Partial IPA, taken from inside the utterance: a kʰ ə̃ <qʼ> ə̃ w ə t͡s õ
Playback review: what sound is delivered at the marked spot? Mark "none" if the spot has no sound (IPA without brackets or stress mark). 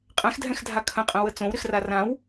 qʼ